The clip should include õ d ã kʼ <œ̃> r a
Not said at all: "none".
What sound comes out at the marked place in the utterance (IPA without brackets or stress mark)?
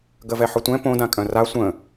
œ̃